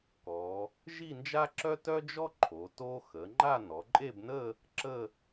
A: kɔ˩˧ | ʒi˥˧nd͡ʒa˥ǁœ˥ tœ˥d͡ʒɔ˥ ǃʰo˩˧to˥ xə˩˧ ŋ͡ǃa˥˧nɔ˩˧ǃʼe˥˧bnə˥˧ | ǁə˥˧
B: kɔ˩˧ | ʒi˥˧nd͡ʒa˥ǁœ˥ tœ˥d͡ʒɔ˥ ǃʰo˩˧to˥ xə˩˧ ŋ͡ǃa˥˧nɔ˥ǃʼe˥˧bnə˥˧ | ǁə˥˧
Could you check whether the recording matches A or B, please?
A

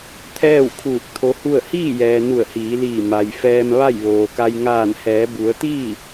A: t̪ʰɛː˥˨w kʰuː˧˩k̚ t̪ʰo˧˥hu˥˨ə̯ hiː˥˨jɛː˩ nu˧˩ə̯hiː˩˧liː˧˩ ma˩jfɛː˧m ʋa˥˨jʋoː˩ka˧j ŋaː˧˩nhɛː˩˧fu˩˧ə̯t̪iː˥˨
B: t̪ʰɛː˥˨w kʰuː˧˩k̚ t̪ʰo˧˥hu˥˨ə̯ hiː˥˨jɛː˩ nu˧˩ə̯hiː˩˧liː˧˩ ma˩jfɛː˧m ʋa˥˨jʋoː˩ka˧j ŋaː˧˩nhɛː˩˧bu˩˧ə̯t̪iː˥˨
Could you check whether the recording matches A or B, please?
B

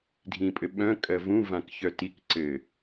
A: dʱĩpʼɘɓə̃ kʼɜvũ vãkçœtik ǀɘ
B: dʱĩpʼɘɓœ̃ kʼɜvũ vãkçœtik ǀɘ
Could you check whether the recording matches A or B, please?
B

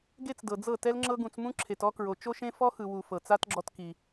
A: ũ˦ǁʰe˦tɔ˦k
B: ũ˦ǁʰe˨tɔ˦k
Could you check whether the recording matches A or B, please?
B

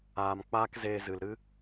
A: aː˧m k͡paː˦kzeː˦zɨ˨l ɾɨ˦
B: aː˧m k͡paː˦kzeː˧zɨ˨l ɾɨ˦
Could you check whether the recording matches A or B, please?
B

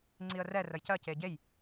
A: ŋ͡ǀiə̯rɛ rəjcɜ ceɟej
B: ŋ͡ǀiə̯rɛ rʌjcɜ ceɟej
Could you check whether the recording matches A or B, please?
A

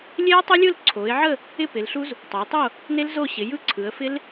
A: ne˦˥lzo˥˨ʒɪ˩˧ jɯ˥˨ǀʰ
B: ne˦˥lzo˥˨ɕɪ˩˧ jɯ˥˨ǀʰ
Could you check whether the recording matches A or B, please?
B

